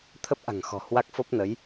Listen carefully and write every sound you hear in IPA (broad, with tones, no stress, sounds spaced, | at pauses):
t̪ʰ ə˦˥ p̚ ʔ a̤˨˩ ŋ x ɔ̤˨˩ h w a˦˥ k̚ f o˦˥ p̚ n ə˨˦ j